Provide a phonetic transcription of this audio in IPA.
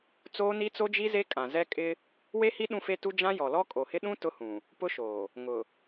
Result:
t͡soː˦ni˦t͡so˦d͡ʒi˦ ze˦kʼã˨zɛ˦ kʼɪ˦ | we˦hi˦ ɗũ˦fe˦tu˦ d͡ʒã˦jɔ˨lɔ˦ kʼo˨hɪ˦ ɗũ˦ tʊ˦hũ˨ | pʊ˦ʃoː˨ | ŋʊ˨

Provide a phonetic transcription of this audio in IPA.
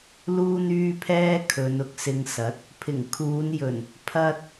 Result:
luː˥n̪yː˥pʰɛː˥ kʰɵ˨˧nʊ˨˥k̚sɪ˧ŋsɐ˨˥t̚ | pʰɪ˨˩ŋkʰuː˨˧njɵ˨˩n | pʰɐ˥t̚

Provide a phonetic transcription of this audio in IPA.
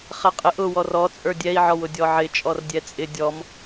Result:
χɛqʼɪʔ ʊ wɔrɔ t͡sʼə˞dʲɛi̯ʕɔwʊ dʲɔʕɪ t͡ʃʼɔrdʲɛt͡sʼɪ dʲɔm

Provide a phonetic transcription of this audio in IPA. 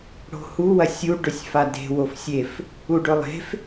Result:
ɽo̤hu wɐsʲu ɖɵsʲfade̤ wofsʲef | uɖɵlˠe̤f

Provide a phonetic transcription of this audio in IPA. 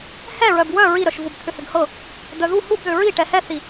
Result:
hɛɹœb wœ ɹiɾœʃvub t̪ʰʏhʏɡhɤ | d̪œðu hub ðʏɹi ʈɛhɛθi

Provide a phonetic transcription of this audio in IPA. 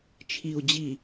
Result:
t͡ʃʰi˨u̯d͡ʑi˨

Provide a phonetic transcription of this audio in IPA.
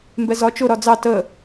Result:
mbɛzɒ t͡ʃʊ ɾɒd͡zɑ tə

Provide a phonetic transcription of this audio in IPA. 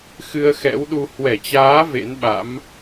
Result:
xɨ˧ə̯xɛ̰˧˥wɗu˧ hwɛ˧˩t͡ɕaː˨˦ vḛ˧˥nɓa̰˧˥m

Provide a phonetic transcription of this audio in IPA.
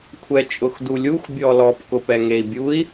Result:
kʷʰɛt͡ʃʼʊxdulʲux bʲɔlɔp kʊpɛŋei̯bʲui̯

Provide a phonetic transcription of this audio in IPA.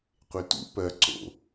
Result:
qʷetṵ pɜ ǀo̰

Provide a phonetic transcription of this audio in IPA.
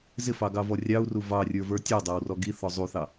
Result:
zɪfɑɡɑvɔ rʲɑu̯ru vɑrʲə˞və˞ tʲɔdˤæwrɔ ɡiθɔ zˤuθɑ

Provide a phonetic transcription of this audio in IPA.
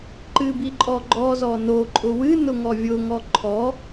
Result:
ǃɨbiǃʼɔɡ͡ǃɔ zɔno ǃʼʊwɨ nʊŋɔvʲʊ ŋɔǃʰɔ

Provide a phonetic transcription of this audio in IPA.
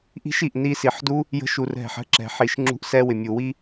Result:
ʔi̤˦ʃ i˨ʔni˧ si˨ħdu˦ | jə̤˧ ʃu˨rɦɛ̤˨ħ ə̤˦ǁɛ̤˨ ħi˨ʃŋ͡ǁṳ˧ʔ sɛ˧wɪ˨ mʲu˨wi˦

